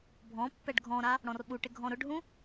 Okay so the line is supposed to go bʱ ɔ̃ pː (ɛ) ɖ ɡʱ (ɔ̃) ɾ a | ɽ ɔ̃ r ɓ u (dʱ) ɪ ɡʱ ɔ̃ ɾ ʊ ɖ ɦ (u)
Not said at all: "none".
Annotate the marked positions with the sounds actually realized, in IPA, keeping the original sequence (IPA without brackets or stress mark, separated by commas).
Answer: ɛ, ɔ̃, ʈ, ũ